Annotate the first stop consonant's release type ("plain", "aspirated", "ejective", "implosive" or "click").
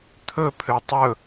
aspirated